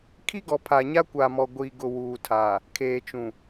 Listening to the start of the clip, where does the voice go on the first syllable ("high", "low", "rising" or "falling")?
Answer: high